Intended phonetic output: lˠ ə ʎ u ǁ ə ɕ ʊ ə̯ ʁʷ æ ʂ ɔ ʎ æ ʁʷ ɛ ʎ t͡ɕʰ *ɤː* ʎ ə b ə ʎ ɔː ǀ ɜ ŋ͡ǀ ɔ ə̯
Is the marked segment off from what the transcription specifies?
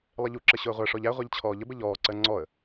yes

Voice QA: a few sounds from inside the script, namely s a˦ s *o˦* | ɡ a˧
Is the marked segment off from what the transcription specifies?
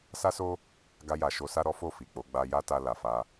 no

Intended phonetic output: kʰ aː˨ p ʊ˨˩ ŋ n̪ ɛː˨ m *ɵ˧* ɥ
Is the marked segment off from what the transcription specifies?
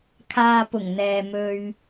no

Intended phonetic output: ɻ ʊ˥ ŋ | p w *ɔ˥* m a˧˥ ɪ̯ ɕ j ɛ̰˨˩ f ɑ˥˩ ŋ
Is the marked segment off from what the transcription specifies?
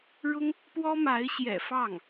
no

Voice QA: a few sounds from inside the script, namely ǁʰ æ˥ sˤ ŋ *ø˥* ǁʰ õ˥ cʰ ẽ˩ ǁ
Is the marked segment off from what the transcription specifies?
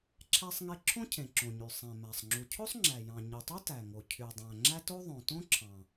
yes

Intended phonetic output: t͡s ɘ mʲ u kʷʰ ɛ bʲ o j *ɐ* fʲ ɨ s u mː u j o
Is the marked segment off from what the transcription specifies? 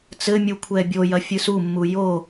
no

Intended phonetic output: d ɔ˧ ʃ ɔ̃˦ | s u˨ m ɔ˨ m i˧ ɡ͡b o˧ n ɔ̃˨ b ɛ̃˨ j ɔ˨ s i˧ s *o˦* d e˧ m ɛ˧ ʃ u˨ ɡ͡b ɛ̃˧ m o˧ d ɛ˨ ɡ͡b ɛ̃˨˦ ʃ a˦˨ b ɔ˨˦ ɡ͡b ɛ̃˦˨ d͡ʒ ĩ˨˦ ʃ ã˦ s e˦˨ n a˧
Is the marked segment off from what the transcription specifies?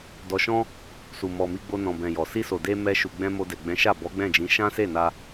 yes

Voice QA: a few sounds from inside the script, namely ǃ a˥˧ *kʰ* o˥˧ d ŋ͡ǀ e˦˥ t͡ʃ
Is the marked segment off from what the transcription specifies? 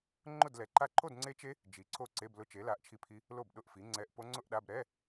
yes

